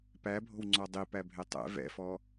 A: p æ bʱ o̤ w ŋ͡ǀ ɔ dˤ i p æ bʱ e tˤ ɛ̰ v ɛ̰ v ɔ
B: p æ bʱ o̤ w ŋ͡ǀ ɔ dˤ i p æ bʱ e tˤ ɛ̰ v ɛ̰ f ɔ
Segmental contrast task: B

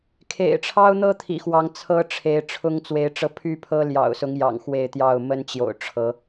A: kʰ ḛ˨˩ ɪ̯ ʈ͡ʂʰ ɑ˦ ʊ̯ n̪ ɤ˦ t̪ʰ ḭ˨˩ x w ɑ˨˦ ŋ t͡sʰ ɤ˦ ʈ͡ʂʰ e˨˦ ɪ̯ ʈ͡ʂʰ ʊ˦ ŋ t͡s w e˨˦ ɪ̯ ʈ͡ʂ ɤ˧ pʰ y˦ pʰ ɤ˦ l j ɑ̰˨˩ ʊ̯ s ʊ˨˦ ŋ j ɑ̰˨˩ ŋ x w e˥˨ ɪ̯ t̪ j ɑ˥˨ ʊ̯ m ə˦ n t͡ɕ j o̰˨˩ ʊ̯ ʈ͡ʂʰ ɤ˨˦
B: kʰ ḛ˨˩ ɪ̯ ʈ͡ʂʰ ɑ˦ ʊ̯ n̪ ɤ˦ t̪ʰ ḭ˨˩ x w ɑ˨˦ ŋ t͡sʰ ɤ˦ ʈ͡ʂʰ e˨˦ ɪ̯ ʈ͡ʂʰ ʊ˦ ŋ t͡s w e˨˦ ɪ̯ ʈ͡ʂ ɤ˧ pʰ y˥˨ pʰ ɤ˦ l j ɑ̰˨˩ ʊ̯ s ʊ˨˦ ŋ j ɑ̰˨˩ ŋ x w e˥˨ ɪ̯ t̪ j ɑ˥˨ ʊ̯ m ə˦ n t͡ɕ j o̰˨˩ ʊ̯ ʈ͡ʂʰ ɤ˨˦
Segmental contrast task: B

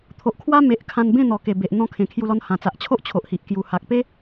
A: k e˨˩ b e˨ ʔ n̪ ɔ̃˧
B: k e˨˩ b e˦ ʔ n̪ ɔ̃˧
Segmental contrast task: A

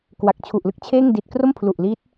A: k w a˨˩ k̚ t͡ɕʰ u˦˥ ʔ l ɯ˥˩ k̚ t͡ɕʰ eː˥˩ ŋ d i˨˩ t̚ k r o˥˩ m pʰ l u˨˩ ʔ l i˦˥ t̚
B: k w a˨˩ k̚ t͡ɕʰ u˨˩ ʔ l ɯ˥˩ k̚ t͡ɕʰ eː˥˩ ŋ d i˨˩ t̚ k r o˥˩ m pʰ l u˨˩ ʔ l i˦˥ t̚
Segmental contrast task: B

